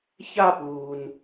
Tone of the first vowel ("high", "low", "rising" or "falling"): falling